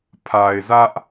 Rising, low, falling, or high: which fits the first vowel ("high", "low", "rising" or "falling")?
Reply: low